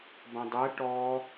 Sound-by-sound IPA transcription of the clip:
b ɐ̃ dˤ ɛ ʈ ɔ

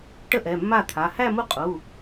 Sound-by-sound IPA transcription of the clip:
ʈ ə˥˧ ʔ ɛ˩˧˩ mː a˥˩ t̪ʰ a˩˧˩ h æ˥˧ m u˥˩ qʼ u˩˧˩

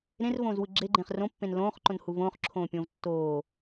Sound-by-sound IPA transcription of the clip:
ɾ ẽ r v õː z w ɯ ɡ͡ǁ e ɡ͡ǃ ẽː χ r õ pː ẽ n l õː χ ǃ õ n h u v õː χ ǁʰ õː pʲ õː v tː oː

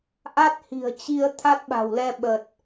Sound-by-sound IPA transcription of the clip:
ʔ a˦˥ t̚ h i̤˨˩ ə̯ t͡ɕ i˧ ə̯ t̪ʰ a˦˥ t̚ ɓ a̤˨˩ w l ɛ˧ ɓ ə˨˩ t̚

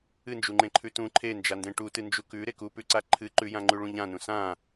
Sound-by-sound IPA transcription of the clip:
ɨ n d͡ʒ u ŋ͡ǃ ẽ ǃʰ ʉ t ũ ǃʰ e n d͡ʒ a n d ẽ ʈ u t ɨ n d͡ʒ u k ʉ ɾ e k u p ʉ ǀ a ǃʰ ɨ ǃ ʉ j ã ŋ͡ǃ ʉ ɭ ũ ʎ ã n ũ s ã

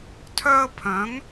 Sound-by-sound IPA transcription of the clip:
tʰ œ˧ ə̯ pʰ œ̃˨˦ ŋ

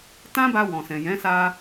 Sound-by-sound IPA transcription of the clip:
t ã˦ b a˧ w ɔ̃˨ s ɛ̃˨ j ɛ̃˨˦ s a˧

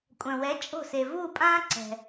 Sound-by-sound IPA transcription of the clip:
kʷʼ œ̃˩ w ɛ˩˥ t͡ʃʼ o̤˥˩ s e˩ v uː˥˩ pʼ ãː˥ ǀ ɛ̤˩

